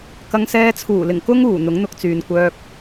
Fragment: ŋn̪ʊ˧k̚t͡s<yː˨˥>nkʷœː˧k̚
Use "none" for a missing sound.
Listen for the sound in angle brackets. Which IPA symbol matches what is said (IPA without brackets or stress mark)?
yː˨